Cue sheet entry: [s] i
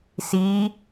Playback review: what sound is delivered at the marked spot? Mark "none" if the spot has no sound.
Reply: s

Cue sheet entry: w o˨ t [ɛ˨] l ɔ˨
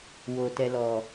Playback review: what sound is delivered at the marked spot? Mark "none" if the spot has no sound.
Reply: ɛ˨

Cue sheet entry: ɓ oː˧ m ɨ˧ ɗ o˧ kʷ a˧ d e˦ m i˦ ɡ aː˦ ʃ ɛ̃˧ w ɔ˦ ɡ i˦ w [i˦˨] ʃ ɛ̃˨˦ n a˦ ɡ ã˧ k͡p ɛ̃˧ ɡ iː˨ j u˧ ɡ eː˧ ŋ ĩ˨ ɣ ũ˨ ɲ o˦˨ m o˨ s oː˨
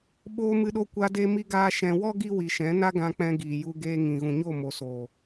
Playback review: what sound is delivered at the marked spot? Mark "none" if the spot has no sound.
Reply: i˨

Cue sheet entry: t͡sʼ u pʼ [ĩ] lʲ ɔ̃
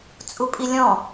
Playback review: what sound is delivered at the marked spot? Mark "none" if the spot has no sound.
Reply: i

